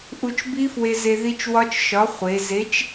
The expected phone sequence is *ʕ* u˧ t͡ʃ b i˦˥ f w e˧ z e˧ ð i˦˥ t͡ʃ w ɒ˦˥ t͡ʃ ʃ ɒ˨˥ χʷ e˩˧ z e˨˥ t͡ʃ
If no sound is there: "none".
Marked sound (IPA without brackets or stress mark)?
ʔ